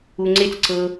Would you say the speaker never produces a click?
no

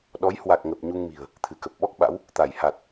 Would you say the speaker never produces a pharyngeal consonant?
yes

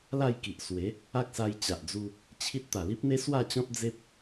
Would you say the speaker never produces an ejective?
yes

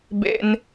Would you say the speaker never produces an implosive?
yes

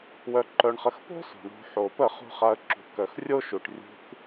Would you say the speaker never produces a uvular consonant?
no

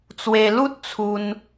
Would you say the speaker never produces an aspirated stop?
no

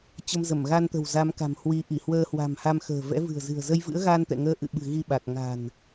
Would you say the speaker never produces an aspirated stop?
yes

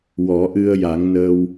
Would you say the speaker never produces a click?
yes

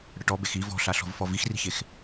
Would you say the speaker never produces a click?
yes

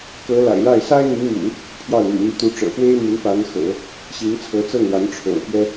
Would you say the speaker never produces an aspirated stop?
no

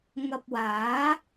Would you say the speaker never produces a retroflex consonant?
yes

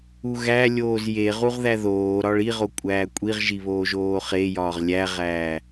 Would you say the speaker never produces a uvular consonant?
no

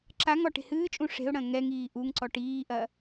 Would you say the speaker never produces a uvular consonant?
yes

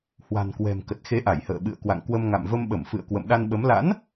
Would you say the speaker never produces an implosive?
no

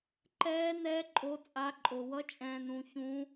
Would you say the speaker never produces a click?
no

